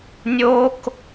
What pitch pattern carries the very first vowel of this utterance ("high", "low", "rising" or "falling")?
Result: high